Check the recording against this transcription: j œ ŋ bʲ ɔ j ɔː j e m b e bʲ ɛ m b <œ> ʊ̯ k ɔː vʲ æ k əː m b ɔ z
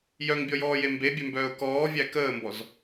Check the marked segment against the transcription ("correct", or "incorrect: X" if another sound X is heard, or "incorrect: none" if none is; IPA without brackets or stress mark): incorrect: œː